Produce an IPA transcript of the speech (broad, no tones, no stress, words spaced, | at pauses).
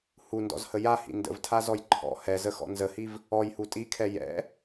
hundɔ̰zhə jahḭ ndə̰vtʰazɔj ǃʰɔ̰ hɛzəxɔ̰ nzəhiv | ɔjhu tʼikʰɛ jɛ̰